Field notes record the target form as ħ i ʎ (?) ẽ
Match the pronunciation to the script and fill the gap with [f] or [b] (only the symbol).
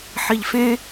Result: f